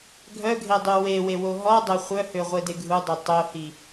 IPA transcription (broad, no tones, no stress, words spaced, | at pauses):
ɡʱœɡʱedˤy wewewo ɦɔdˤæ χʷœhøʁʷede ɡʱudˤe tˤohi